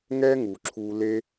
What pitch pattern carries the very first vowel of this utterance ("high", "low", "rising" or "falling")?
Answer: high